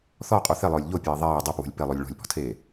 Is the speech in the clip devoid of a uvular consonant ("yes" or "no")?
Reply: no